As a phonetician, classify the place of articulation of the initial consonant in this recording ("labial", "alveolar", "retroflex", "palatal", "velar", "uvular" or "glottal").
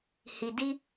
glottal